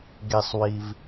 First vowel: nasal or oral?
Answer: oral